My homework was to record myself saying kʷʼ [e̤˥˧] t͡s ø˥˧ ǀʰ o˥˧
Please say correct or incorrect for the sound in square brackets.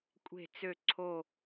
correct